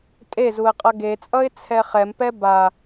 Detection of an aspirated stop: present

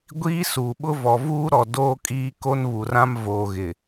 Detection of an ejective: present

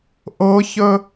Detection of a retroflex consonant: absent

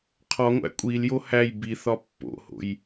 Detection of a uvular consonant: present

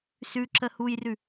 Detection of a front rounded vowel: absent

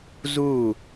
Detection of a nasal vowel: absent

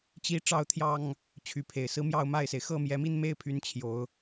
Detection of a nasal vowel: absent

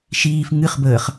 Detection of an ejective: absent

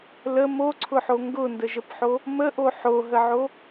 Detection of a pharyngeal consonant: present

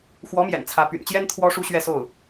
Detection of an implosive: absent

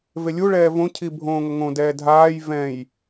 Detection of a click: absent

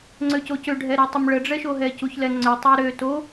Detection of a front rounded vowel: present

